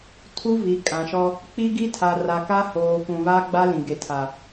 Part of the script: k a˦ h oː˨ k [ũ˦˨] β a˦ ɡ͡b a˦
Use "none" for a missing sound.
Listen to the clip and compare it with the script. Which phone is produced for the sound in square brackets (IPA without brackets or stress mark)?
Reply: ũ˨